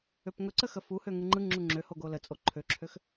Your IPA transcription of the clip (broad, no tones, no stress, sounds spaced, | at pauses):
ø p ŋ ɵ ǀ ə x ə f u h ø ŋ ɯ ŋ͡ǃ ɯ ŋ͡ǁ u ŋ͡ǁ ø h o ɡ o l ə t͡sʼ o ǃʰ ø ǁʰ ø x